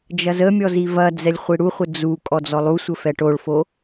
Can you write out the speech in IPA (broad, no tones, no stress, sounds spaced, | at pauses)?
d͡ʒ ɐ z ə mʲ ɔ z i v ɐ d͡z ɛ lʲ χʷ i ɽ u χʷ ə d͡z u kʼ ɔ d͡z ɔ lˠ u sʷ ə f ɛ ʈ o ɭ f o